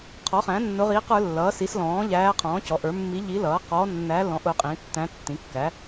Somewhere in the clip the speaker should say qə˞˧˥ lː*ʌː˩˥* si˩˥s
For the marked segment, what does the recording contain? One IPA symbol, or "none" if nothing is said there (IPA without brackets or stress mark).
ʌː˩˥